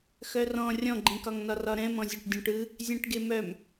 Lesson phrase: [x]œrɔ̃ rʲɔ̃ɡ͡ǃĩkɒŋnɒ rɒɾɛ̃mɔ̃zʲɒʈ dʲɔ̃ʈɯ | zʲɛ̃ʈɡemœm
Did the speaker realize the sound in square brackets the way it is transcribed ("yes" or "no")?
yes